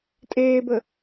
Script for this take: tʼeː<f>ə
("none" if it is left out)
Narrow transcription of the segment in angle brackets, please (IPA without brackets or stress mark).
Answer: b